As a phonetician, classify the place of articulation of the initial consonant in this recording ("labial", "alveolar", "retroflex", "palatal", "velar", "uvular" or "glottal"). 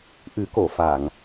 glottal